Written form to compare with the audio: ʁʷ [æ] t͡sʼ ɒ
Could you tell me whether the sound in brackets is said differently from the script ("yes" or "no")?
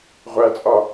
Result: no